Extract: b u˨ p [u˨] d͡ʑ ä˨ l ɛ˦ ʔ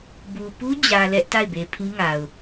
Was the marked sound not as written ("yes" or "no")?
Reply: yes